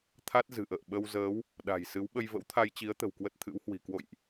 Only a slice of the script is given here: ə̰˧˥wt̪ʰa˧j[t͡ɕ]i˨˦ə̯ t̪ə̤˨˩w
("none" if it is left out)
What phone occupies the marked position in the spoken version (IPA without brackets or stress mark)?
t͡ɕ